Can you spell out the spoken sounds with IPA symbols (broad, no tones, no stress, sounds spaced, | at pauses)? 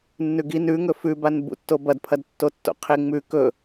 nː ʉ ɡ i n ʉ ŋ ɵ f ʉ b a n b ṵ tː o b ɐ d pʰ ɐ d tː o tː o̰ qʰ e ŋ͡m ʉ k ɵ